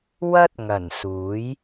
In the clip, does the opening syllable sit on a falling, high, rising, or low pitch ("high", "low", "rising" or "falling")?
high